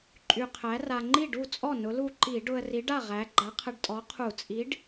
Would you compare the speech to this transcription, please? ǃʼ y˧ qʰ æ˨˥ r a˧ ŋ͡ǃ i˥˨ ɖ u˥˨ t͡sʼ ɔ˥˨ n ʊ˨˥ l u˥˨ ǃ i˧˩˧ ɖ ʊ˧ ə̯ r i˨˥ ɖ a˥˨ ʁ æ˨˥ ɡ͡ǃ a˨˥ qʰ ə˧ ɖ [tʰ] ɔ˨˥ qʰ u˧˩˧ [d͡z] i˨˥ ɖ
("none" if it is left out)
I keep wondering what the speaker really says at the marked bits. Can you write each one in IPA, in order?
tʼ, t͡sʼ

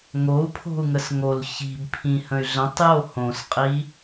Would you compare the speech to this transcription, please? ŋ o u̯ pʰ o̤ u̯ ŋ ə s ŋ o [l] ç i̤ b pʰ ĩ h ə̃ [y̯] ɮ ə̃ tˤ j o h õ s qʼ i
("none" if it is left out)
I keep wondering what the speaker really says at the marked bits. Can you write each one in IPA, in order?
l, y̯

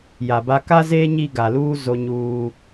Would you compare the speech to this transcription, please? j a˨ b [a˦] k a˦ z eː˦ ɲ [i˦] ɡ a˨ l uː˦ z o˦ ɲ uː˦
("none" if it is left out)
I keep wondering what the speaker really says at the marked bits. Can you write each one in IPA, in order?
a˦, i˦

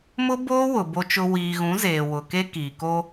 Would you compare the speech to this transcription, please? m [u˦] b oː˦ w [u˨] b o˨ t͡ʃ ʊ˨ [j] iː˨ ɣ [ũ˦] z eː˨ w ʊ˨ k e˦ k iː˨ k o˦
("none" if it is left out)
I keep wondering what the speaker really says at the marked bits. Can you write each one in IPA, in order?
ʊ˦, ʊ˨, w, ũ˨˦

